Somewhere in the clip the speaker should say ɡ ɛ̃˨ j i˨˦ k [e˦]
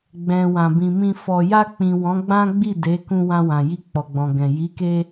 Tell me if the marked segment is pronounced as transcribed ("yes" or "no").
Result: no